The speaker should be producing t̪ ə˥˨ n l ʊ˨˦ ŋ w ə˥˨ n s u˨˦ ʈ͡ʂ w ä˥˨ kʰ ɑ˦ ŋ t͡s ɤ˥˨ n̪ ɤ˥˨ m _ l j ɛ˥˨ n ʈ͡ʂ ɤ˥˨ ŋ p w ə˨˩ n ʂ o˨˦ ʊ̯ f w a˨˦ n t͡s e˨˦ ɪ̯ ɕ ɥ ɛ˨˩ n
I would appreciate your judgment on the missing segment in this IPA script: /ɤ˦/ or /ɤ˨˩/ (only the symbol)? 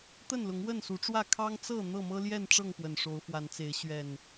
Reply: ɤ˦